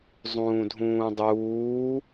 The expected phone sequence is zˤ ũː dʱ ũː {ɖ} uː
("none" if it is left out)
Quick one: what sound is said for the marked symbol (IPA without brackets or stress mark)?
dˤ